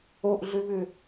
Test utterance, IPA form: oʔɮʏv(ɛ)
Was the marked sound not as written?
yes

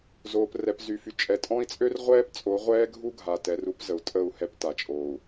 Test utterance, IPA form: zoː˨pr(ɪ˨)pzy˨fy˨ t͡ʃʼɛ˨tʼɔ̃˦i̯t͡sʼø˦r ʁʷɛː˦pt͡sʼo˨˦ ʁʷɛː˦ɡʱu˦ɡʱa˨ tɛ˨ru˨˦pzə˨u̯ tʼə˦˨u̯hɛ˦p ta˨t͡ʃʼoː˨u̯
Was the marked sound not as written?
yes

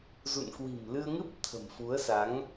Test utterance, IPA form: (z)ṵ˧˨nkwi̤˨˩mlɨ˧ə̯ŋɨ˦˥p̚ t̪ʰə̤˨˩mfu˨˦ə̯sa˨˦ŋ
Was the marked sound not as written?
no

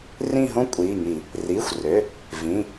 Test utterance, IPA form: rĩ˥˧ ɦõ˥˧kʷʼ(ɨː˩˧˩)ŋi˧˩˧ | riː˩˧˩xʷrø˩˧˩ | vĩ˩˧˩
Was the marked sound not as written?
yes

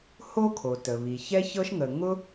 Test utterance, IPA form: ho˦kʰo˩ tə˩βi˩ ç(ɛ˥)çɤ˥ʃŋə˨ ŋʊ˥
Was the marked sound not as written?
no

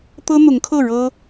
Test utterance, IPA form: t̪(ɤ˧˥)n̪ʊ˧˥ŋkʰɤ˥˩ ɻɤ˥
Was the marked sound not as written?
yes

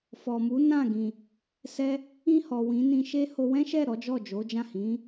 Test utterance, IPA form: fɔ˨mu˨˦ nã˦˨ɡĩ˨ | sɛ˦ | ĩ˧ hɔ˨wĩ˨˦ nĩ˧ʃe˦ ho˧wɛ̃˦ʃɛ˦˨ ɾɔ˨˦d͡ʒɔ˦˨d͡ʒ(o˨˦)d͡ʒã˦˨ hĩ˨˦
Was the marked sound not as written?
no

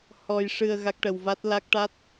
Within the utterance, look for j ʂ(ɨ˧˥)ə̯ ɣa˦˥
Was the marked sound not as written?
yes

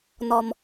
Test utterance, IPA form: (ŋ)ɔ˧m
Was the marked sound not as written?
yes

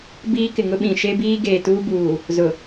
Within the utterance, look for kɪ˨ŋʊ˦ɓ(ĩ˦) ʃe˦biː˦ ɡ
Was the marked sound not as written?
yes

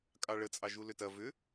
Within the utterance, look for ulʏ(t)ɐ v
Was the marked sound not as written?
no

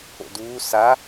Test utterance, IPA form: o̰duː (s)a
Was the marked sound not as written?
no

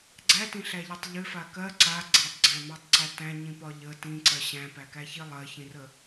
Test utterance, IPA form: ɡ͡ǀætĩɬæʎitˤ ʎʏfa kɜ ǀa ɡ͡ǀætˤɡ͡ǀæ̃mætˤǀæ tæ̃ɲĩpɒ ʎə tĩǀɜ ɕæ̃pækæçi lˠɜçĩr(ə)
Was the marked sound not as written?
no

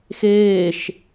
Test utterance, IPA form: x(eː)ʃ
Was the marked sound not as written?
no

